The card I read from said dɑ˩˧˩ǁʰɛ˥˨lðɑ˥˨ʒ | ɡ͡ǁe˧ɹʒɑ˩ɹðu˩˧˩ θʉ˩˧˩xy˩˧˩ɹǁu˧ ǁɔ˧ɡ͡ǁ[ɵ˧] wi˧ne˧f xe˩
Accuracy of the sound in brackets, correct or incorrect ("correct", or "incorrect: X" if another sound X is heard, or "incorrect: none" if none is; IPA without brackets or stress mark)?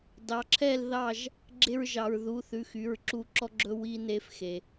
correct